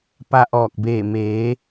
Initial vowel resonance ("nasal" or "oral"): oral